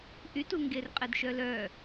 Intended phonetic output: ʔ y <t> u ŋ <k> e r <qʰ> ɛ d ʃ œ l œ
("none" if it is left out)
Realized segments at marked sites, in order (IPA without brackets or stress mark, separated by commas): t, ɡ, qʼ